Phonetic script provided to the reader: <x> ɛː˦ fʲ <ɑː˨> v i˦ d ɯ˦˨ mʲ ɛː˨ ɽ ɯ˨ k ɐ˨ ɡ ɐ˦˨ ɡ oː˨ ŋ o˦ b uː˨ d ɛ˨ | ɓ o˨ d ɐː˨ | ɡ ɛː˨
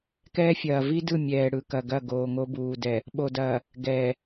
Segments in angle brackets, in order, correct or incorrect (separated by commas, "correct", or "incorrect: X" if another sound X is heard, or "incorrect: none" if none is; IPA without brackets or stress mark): incorrect: k, incorrect: ɐː˨